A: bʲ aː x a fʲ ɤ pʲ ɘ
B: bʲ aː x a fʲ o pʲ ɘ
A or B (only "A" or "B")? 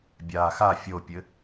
B